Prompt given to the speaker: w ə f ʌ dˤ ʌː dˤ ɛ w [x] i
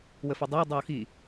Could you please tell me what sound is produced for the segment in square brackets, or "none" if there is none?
x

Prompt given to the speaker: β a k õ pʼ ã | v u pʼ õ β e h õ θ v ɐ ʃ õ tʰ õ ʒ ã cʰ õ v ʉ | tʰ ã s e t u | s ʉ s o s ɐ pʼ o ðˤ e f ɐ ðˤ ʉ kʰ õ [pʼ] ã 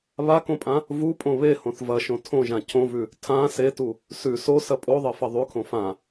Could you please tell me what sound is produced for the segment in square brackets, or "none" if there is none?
f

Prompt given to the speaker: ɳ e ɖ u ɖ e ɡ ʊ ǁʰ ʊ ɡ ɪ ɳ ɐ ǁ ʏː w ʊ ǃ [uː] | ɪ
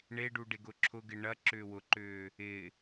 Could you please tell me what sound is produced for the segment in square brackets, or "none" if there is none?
ʏː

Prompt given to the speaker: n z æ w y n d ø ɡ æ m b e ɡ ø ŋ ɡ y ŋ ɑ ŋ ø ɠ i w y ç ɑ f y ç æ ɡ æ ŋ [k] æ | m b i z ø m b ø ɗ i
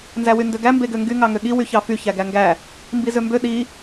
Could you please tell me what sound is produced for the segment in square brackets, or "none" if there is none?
ɡ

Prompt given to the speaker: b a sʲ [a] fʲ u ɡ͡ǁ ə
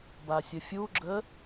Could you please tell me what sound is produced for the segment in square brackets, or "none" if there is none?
ə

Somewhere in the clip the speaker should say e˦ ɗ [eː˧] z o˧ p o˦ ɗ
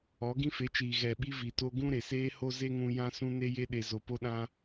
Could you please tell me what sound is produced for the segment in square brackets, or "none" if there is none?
e˧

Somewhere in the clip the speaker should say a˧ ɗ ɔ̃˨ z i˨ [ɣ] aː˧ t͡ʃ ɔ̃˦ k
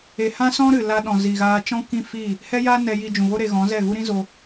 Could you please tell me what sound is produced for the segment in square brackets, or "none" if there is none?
ɣ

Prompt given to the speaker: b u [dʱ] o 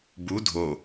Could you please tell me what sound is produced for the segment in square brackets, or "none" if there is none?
dʱ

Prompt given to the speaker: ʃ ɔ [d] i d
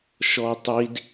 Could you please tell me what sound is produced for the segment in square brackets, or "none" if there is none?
tˤ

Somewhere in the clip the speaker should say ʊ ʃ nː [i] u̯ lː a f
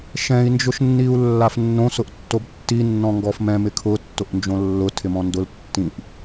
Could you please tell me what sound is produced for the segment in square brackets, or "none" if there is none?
i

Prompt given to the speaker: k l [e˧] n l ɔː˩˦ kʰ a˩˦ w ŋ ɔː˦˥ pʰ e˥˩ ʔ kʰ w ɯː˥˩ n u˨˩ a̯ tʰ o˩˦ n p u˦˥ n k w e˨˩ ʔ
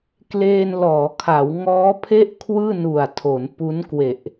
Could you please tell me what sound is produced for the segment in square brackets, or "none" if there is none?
eː˧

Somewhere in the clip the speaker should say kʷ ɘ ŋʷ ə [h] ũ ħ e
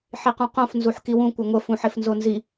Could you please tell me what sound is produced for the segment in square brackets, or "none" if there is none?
f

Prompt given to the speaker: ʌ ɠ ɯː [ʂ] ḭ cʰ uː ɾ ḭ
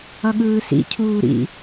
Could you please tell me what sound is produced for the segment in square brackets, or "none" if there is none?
s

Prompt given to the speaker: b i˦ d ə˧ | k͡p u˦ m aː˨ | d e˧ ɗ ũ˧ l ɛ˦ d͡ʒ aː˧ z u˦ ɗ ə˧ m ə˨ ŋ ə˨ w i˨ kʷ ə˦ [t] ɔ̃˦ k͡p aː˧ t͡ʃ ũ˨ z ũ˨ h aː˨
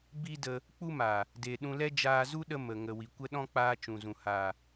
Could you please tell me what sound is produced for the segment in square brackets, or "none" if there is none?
ɗ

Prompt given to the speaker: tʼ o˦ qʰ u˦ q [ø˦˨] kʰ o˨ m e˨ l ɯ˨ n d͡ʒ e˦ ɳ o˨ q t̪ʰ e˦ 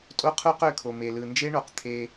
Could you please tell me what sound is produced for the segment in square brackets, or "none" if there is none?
ø˦˨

